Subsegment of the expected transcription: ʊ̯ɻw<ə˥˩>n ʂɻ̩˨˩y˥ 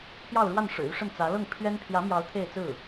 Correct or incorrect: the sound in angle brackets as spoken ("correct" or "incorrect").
incorrect